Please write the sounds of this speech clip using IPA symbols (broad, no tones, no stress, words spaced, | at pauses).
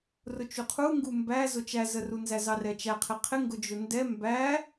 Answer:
rʊt͡ʃuqʰuŋɡu mbæ zʊt͡ʃæzəru nzæzɑrɛt͡ʃæ qʰɪqʰɪ ŋɡʊd͡ʒʊndɛ mbæ